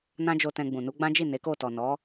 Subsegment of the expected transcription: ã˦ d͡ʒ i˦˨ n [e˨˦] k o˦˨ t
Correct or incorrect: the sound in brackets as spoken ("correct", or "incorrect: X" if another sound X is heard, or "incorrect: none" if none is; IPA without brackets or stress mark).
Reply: correct